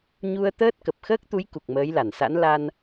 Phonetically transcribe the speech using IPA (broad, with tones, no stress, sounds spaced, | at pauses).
ɲ u˧ ə̯ t̪ əː˦˥ t̚ k ə˨˩ p̚ x əː˦˥ k̚ t̪ u˨˦ j k u˨˩ k̚ m əː˨˦ j l a˧˩ n s a̰˧˥ n l a˧ n